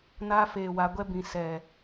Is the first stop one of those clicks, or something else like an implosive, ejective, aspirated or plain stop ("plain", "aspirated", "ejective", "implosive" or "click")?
plain